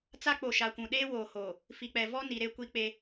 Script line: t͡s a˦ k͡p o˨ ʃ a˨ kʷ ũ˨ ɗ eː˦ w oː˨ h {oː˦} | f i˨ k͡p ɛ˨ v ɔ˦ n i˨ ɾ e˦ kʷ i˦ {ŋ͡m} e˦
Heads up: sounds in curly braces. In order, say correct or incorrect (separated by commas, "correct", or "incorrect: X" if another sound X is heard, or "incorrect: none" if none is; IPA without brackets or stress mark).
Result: incorrect: oː˨, incorrect: k͡p